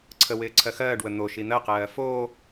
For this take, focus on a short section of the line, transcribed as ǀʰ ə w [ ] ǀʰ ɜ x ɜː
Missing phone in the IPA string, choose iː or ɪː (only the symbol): ɪː